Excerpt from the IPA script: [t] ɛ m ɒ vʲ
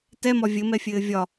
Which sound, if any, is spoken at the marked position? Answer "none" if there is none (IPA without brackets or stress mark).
t